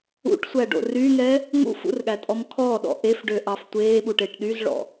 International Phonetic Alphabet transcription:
ṵ ʈ sʷ æ ɖ o̰ r y ŋ ɛ | ŋ ṵ f ṵ r ɠ æ tʼ ɔ m kʰ ɔ ɗ ɔ̰ ʔ e f ɖ ø ʔ ɑ f tʷ eː ɓ u ʈ e ʈ ɗ y z ɭ ɔ̰

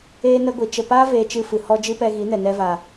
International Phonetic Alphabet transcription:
eː˦ n ə˦ ɡʷ i˨ t͡ʃ ə˨ p aː˦ v eː˧ t͡ʃ ɨ˧ f ɨ˨ h ɔ˦ d͡ʒ ɨ˦ p ɛ˧ ɣ i˨˦ n ɛ˨ n ɛ˧ v a˨

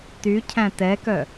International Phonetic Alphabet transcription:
t y cʰ æ̃ t ɛ k œ

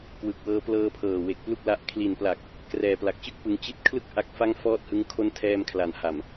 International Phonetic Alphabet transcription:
k w ɯ˨˩ k̚ w ɤː˧ p l ɤː˧ pʰ ɤː˨˩ w e˨˩ k̚ p l u˥˩ k̚ l a˦˥ ʔ kʰ l i˨˩ n p l a˨˩ k̚ | k r ɛː˨˩ p l a˨˩ k̚ t͡ɕ ɯ˥˩ k̚ p ɯ˧ ŋ t͡ɕ i˦˥ t̚ kʰ l ɯ˥˩ k̚ ʔ a˦˥ k̚ f a˥˩ ŋ f ɔː˥˩ t̚ h ɯ˦˥ ŋ kʰ o˦˥ n tʰ ɛː˧ m kʰ l a˩˦ n h a˨˩ m

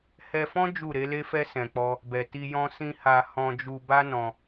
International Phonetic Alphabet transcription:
h ɛ˧ f ɔ̃˦ d͡ʒ u˦˨ ɾ e˨˦ l e˦ f ɛ˦ s ɛ̃˧ k͡p ɔ˦ | b ɛ˨ t i˧ j ɔ̃˦ s ĩ˦ h a˧ h ɔ̃˧ d͡ʒ u˧ b a˦ n ɔ̃˧

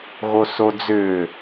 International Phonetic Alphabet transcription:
ɣ o s o d͡z ʏː

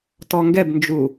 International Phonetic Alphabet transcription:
t ɔ ŋ ɡ ɛ b n d͡ʒ u

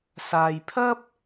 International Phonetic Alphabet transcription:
s aː˧ j pʰ ɐ˥ p̚

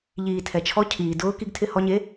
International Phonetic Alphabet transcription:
ʎ iː˩ tʰ ɛ˩ t͡ʃʰ ɔ˧˥ cʰ iː˩ d ʊː˧˥ k i˧ ɡ tʰ ɪ˧ h ɔ˧ ɲ e˧˥

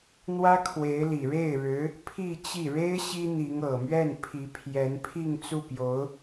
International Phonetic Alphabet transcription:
n̪ w ä˥ kʰ w e˧˥ ɪ̯ l i˨˩ ɻ e˥˩ ɪ̯ ɻ ɻ̩˧˥ | pʰ i˥˧ t͡ɕ i˥˩ ɻ e˥ ɪ̯ ɕ i˥ n̪ i˧˥ ŋ ɤ˨˩ m ɥ ɛ˥˩ n pʰ i˧˥ pʰ j ɛ˧˥ n pʰ i˥˧ ŋ t͡s u˥˩ p j o˧˥ ʊ̯

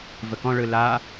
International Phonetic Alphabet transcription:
v ə k ɔ̃ ɭ ɯ l a

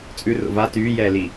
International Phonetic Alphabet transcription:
t͡sʼ ʉ r o̰ v a t yː j ɛː l i

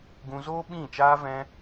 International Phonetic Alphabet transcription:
ɡ ũ˧ z oː˦ ɓ ĩ˦˨ t͡ʃ aː˦ v ɛ̃˦

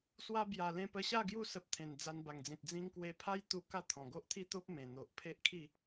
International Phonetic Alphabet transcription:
s w a˧ b j a˨˩ l ẽ˧ p ə˧ ɕ a˥˧ ɡ j u˧ s ə˨ p̚ t̪ʰ ẽ˨˩ n d͡z a˧ n b a˨˩ ŋ d͡z ĩ˨ t̚ d͡z ĩ˧ ŋ k w e˧ pʰ a˦ j t̪ u˧ k a˥˧ t̪ʰ ɔ̃˨˩ ɡ o˦ ʔ t̪ʰ i˦ t̪ o˦ p̚ m ẽ˨˩ n̪ o˨ ʔ pʰ e˦ ʔ kʰ i˥˧

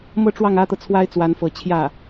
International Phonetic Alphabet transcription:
m ɤ˥˧ ʈ͡ʂ w ɑ˥˩ ŋ ä˥ t̪ ɤ˨ t͡sʰ w a˥ ɪ̯ t͡s w a˧˥ n f ɤ˧˥ t͡ɕʰ j ä˥˩

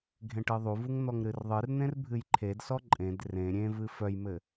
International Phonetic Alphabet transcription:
ɡʱ ẽ ʈ ɨ ðˤ u v u ŋ n̪ ɔ ŋ ɾ ɨ r ðˤ ɨ r n̪ ẽ r bʱ ɨ j ǃʰ e d s ɔ ǃʼ ẽ d r ẽ ɾʲ ẽ v ɨ f œ j m ɘ

